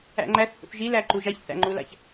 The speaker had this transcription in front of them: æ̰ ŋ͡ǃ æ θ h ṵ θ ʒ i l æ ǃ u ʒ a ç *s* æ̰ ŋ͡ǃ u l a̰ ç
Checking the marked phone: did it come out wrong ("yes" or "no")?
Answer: yes